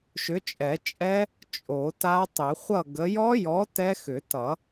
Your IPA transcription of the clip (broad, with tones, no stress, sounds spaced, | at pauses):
ʃ ʏ˨˥ t͡ʃʼ ɛ˨˩˦ t͡ʃʼ ɛ˦˥ | t͡ʃʼ o˨˩˦ t a˦˥ tˤ ʏ˨˩˦ χʷ ʌ˥˨ ɡ ə˨˥ j ɔ˦˥ j ɔ˨˥ t ɛ˦˥ x ʏ˨˩˦ t ʌ˨˩˦